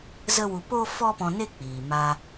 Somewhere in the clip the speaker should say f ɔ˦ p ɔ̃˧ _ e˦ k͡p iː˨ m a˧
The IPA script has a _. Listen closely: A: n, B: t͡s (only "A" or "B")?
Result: A